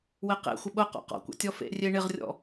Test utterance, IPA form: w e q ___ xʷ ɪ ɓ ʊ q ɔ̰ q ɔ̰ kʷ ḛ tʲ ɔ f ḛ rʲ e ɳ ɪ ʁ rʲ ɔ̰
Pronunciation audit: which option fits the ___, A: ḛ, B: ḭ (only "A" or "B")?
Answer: A